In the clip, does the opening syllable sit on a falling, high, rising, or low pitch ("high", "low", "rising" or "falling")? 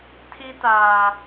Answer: high